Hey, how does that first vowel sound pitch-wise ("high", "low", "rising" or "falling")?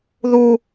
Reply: high